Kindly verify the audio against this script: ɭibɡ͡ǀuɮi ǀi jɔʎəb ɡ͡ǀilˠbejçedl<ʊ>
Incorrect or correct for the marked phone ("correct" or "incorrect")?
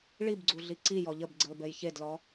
incorrect